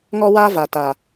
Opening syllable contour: high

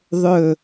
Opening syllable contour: low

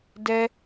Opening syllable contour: high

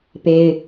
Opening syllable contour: high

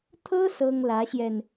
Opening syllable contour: high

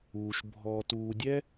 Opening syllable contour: low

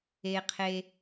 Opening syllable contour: low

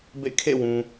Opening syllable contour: falling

